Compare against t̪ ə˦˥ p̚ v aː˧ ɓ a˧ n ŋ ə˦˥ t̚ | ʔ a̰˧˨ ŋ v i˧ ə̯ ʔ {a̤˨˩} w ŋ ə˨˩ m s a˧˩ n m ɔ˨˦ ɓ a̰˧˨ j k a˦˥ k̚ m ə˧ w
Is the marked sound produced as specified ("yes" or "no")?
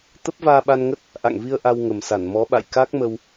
no